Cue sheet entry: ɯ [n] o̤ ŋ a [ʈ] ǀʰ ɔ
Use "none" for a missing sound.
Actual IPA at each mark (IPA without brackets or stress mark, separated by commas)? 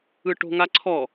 ʈ, none